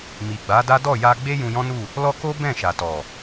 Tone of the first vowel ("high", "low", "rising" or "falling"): low